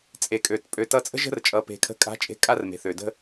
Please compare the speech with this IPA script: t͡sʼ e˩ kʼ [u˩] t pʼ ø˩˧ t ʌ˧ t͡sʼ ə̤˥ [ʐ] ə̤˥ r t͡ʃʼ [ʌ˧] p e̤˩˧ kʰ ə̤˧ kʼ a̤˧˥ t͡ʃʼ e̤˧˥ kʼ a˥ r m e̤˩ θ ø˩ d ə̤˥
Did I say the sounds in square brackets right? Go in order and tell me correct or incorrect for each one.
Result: incorrect, incorrect, incorrect

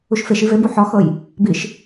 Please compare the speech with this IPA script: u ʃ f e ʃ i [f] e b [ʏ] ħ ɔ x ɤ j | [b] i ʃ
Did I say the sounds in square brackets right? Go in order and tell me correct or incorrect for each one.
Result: incorrect, incorrect, correct

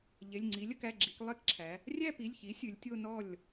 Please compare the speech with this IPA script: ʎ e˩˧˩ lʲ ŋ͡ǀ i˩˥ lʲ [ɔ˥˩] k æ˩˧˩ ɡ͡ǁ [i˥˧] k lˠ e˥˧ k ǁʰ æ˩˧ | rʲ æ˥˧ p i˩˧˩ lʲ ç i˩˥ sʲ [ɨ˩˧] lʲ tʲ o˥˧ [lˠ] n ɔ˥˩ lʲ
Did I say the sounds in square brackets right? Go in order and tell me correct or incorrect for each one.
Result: incorrect, incorrect, correct, incorrect

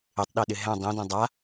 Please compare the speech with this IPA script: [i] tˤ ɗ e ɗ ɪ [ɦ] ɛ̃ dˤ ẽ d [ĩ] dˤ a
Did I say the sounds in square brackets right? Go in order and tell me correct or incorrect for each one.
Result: incorrect, correct, incorrect

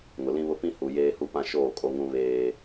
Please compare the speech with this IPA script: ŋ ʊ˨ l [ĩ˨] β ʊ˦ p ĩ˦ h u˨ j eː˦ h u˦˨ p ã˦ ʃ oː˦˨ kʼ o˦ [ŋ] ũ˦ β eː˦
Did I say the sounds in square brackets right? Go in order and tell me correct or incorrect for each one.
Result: incorrect, correct

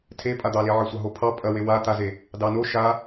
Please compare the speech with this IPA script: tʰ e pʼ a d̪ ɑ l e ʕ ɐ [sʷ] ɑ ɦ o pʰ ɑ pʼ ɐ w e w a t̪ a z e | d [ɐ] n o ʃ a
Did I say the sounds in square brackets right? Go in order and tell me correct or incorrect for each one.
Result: correct, incorrect

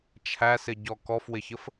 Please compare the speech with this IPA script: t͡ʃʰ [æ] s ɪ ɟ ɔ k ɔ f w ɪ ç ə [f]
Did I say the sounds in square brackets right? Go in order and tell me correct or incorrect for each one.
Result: correct, correct

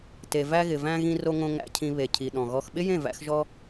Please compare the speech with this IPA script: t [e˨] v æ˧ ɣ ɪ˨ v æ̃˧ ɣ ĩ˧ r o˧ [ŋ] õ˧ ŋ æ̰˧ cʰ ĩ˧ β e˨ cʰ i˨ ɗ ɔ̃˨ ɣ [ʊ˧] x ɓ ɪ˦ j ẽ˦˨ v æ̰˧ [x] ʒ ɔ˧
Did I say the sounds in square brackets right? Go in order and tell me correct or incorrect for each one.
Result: correct, correct, incorrect, correct

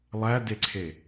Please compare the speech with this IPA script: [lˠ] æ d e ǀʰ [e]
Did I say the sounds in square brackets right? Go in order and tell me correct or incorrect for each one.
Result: correct, correct

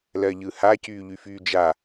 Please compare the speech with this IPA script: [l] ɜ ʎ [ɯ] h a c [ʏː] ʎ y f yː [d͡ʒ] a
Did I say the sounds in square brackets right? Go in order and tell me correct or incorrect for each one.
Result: correct, correct, incorrect, correct

